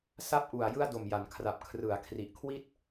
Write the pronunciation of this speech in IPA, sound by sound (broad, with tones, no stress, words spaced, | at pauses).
sa˥˩p̚ʔu˨˩a̯ jɯ˥˩a̯do˨˩mja˩˦nkʰra˨˩p̚ kʰrɯ˩˦a̯kʰri˨˩ʔkʰwi˥˩t̚